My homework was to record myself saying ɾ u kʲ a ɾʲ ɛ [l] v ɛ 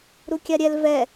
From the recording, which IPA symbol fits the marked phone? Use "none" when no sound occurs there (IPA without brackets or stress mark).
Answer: l